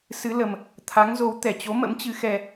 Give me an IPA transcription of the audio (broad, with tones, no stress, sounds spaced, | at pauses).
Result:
s ɨ˨˦ l ə˨˩ m | t̪ʰ a˨˦ ŋ z o˨˦ w t̪ ɛ˧˩ t͡ɕ o˨˦ m ə̰˧˥ m t͡ɕ ɨ˨˦ x ɛ˧